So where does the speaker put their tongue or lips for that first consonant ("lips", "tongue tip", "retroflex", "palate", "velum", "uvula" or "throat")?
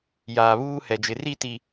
palate